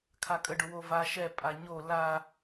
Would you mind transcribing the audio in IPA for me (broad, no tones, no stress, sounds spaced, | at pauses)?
kʰ a kʼ ə ɖ ʊ w o v a ʃ ɛ pʼ a ɲ o l a